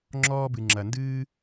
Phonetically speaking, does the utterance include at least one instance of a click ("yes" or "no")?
yes